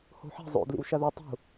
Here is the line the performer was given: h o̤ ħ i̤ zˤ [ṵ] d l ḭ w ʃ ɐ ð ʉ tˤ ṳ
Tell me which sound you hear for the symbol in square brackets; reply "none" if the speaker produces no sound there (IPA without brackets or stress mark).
o̰